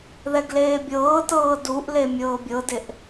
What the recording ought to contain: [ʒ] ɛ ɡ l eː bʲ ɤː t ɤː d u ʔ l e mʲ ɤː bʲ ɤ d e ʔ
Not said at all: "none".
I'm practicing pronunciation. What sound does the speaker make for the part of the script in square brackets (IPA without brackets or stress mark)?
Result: ð